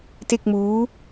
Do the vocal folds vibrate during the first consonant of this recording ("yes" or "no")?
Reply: no